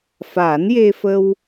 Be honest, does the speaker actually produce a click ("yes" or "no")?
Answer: no